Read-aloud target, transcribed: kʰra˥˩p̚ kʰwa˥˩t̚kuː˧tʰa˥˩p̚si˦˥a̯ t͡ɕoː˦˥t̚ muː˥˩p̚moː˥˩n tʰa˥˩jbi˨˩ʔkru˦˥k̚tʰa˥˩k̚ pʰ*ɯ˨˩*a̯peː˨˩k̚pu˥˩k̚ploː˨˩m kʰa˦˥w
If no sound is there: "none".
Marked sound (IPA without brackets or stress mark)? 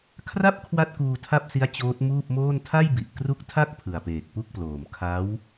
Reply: ɯ˨˩